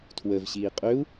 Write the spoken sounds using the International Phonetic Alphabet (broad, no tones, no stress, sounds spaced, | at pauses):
tʰ w ə v ɕ iː qʼ ø u̯